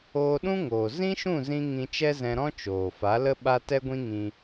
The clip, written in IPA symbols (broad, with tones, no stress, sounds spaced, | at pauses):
oː˧ ɗ ũ˦ ŋ oː˨ z ĩ˦ ʃ ũ˦˨ z ĩ˧ ŋ ĩ˧ t͡ʃ ɛ˦ z ɛ̃˧ ɾ ɔ̃˦ t͡ʃ oː˨ f a˨˦ l ə˦ ɓ a˦ t ɛ˦ ɡʷ ĩ˦ ŋ ĩ˧